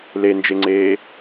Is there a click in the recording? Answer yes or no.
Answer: yes